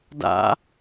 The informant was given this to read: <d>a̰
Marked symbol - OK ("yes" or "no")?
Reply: yes